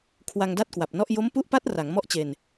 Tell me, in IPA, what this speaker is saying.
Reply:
kʰwa˧ŋda˥˩t̚kwa˨˩p̚nɔ˥˩ʔ jo˦˥mpu˦˥ʔpa˦˥t̚ ra˩˦ŋmɔ˥˩ʔt͡ɕe˧n

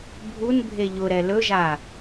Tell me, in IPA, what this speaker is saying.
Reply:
bʱunbʱe ʎʊɾɛ lɵʒa

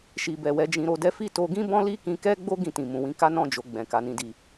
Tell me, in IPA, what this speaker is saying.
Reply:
ʃi˨bɛ˨ wɛ˨˦d͡ʒĩ˧ɾo˧dɛ˦ fi˦˨to˧ ɡĩ˦bɔ̃˦li˦kĩ˧ kɛ˦ɡ͡bo˦ ɡĩ˦˨tĩ˨ mũ˨wĩ˧ka˦ nɔ̃˦˨d͡ʒo˨ ɡ͡bɛ̃˨ka˨ nĩ˨di˨

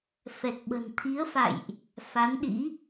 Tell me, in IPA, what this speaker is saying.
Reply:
fɛ˨˩k̚ɓə̤˨˩n t̪ʰi˨˦ə̯fa̰˧˨jʔ | fa˨˦nɗḭ˧˥

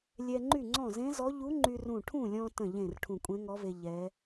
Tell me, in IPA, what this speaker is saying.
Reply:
lʲɛ˧ŋ͡ǃy˥˩ŋ͡ǀɔ̃˥˩ zẽ˧˥zɔ˧˥ ʎu˧˥ŋ͡ǃy˧rũ˧˩ ʈʰũ˥˩lʲɔ̃˧ tə̃˥˩ʎẽ˥˩r ʈʰũ˧˩kʷʼẽ˧˥ŋɔ˧˥ve˧ ʎɛ˧˥

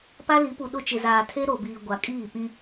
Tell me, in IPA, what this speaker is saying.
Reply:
pa˦li˨˦pu˨ɗʊ˦˨ t͡ʃɪ˨zaː˨tʰe˦ ɾo˨biː˨ ɡʷa˨kʼiː˦˨ pĩ˦

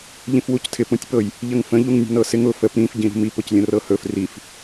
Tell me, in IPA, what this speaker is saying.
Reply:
ʎĩfwuctʰɪp ũtʲpɤj | ʎəŋfə̃ ʎuŋnʲə̤nɤsɪŋ ʊ fəp ɾĩf ɟĩɾṳmip ʊclʲə̃rɤhɵf rif

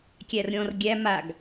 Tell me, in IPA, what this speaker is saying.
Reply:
kʲærɾʲɔ̃r ɡʲæ maɡ

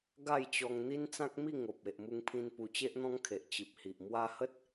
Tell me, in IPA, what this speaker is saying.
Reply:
ɡa˥˧jt͡ɕɔ˧ŋ n̪i˦nt͡sã˦k̚mi˥˧ ŋo˨p̚ e˨ʔmu˧ŋpʰĩ˧n pu˧t͡ɕe˦ʔn̪ɔ̃˦ŋkʰe˨ʔ t͡ɕi˨p̚hi˨ʔ mwa˧hə˦t̚

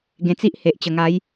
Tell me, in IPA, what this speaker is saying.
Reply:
ɡẽ˧t͡si˦ʔ he˨ʔ t͡ɕə˨˩ŋa˨˦j

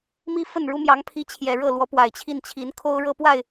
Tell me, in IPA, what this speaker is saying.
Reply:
mi˥fə˥˩nɻu˥ mjɑ˧˥ŋpʰi˧˥ t͡ɕʰjɛ˨˩ɻɤ˥˩lwɔ˧˥ pwa˨˩ɪ̯t͡ɕʰi˥˩nt͡ɕʰi˧˥n kʰo˥ʊ̯ɻɤ˥pwa˥˩ɪ̯

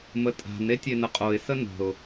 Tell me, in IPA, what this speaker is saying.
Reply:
mətʼa̤n etʲenəqʼoɪ̯ sənə̤ʊ̯

